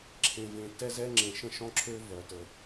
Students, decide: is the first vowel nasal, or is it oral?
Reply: nasal